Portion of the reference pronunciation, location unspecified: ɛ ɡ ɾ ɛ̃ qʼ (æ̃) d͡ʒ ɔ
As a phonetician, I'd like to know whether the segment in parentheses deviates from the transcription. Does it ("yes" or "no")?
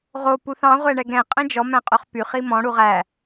yes